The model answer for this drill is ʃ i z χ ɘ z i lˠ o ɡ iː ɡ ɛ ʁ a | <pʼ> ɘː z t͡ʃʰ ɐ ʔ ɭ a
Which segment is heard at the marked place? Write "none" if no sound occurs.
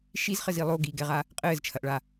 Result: qʼ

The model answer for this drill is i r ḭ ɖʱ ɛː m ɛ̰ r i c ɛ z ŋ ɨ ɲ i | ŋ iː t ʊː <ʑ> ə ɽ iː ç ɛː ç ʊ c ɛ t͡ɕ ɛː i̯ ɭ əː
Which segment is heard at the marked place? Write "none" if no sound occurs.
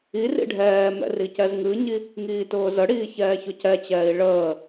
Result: z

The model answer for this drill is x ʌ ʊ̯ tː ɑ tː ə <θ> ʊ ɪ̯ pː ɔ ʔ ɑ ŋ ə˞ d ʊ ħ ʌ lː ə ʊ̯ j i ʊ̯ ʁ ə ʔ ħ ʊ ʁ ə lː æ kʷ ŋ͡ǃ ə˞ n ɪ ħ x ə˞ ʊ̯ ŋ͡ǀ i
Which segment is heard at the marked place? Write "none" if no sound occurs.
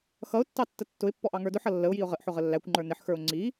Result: tː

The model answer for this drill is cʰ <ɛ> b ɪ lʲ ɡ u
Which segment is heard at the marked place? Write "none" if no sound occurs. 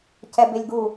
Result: ɛ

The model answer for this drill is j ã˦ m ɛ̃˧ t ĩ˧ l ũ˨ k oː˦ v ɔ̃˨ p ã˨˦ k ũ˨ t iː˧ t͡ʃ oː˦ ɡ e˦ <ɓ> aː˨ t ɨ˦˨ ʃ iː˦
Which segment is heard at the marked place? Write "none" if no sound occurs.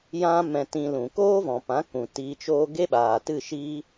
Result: ɓ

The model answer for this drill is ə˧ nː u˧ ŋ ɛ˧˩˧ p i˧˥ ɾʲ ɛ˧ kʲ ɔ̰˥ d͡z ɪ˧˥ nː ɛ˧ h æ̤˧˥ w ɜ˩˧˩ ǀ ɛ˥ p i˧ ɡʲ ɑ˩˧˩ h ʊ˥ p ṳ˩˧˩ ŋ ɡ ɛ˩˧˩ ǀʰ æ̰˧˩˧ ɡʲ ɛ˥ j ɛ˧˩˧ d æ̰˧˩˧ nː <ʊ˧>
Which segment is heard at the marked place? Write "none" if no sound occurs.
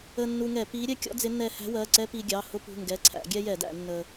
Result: ə˧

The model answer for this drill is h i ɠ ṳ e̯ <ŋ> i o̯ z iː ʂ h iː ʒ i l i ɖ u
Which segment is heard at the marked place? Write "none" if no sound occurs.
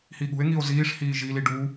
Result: ŋ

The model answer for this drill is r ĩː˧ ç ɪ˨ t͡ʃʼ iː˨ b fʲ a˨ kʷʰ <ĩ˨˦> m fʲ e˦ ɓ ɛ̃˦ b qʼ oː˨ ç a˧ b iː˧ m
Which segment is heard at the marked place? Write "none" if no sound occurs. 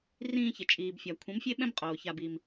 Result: ĩ˨˦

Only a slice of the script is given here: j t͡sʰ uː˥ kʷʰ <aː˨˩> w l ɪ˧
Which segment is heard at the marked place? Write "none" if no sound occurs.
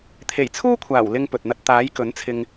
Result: aː˨˩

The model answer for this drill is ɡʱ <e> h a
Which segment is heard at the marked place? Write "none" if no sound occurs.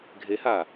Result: e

